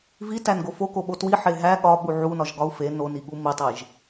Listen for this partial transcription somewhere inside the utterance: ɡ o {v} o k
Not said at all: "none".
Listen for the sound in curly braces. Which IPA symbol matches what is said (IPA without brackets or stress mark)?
f